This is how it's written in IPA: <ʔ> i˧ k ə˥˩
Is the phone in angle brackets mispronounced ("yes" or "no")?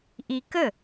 no